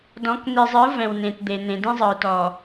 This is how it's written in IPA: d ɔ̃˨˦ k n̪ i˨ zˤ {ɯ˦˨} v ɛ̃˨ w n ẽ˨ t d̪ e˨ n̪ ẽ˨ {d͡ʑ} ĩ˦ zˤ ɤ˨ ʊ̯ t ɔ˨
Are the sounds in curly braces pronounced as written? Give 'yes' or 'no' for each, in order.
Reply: no, no

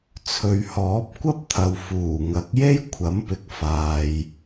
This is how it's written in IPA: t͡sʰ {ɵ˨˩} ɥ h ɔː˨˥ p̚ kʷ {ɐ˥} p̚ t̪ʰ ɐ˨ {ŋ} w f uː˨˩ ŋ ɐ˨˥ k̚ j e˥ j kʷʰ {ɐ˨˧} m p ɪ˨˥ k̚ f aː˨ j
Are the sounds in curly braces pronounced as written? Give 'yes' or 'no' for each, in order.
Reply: no, yes, no, no

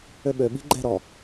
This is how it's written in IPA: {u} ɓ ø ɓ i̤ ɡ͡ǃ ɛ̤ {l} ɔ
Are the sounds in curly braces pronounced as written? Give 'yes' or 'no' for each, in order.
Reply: no, no

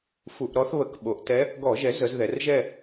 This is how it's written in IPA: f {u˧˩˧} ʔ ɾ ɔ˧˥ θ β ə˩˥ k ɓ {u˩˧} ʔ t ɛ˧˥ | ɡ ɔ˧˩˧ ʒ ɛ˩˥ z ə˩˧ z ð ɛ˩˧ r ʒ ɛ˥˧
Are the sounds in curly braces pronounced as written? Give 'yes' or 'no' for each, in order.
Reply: yes, no

